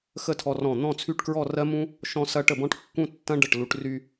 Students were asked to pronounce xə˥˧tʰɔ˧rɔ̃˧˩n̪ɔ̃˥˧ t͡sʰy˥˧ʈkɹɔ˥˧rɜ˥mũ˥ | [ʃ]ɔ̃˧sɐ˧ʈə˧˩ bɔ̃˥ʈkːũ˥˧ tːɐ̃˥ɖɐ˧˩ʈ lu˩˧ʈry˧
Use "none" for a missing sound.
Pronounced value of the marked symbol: ʃ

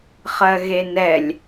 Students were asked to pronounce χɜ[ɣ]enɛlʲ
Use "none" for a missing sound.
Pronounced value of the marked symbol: ɣ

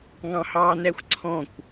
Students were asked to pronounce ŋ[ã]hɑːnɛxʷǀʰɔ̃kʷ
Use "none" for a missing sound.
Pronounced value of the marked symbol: ɑ̃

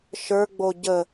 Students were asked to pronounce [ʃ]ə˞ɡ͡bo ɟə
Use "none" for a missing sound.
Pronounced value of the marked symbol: ʃ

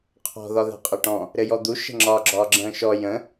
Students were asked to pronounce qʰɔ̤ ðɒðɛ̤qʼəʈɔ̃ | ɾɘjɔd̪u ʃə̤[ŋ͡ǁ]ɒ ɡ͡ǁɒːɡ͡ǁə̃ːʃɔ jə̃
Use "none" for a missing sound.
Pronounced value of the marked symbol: ŋ͡ǁ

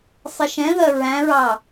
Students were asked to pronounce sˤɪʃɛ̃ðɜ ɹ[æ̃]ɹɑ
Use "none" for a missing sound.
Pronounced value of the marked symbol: æ̃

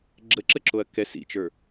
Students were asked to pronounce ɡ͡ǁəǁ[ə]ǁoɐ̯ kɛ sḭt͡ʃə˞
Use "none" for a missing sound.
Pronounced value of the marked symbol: ə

